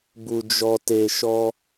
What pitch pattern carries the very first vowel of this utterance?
low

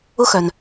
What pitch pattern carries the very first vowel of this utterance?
high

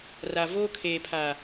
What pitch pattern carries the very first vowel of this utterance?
low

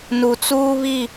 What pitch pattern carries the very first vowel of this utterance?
low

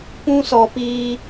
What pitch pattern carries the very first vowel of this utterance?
high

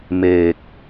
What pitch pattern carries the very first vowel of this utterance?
low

